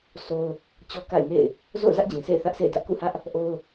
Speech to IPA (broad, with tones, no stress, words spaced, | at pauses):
so˦ʊ̯ | t͡ɕɔ˦ka̰˦˨ɪ̯ŋḛ˦˨ɪ̯ | zo̰˦˨ʊ̯zä˦ʔd͡ʑĩ˨sḛ˦˨ɪ̯ θä˦ʔsʰḛ˦˨ɪ̯dä˦ʔ kṵ˦˨hä˦ʔ | ʔo˦ʊ̯